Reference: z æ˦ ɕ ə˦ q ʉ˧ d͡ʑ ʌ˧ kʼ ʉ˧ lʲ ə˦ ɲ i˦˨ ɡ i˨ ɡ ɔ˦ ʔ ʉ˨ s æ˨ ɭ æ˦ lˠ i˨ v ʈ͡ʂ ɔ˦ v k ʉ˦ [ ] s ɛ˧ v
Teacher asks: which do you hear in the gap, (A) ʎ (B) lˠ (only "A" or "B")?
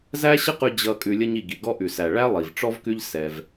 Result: A